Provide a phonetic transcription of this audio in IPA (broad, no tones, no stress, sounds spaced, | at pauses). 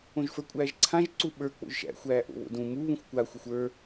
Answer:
õ ʒ f ə˞ kʷʼ æː ʒ ǀʰ ã ʒ ǀ u ɓ ə˞ k͡p o̰ ʒ ʃ æ̰ xʷ æː ʔ o̰ β o̰ d ũ m u β ũ xʷ kʷ a xʷ ɨ xʷ ə˞